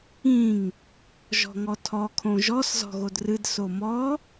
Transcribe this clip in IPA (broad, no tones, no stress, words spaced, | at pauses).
ĩŋ | ʒɔ̤ŋɔtʰɔ kʰõʒɔs zɔ̤ɣodrɨd somɔ